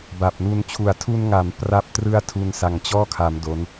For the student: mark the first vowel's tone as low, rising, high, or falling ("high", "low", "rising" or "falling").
low